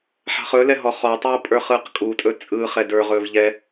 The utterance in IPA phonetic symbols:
ħa̤χɵlɛ ɦɔχɔtˤuː pʼə˞χɯːqkʼutʼɵ t͡sʼɯ χɛdə˞ʁɵːv ʎɛ

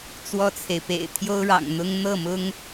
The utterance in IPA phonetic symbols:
t͡swɔ˥˩t͡sʰe˩ɪ̯pḛ˨˩ɪ̯ t̪ʰjo˥ʊ̯ɻɑ̰˨˩ŋn̪ʊ˥ŋ n̪ɤ˥˩mʊ˥ŋ

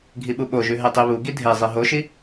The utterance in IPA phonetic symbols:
ɡʱiɓuɓoʒʉ ɦetˤiβuɡi dʱezˤi ɦoʃi

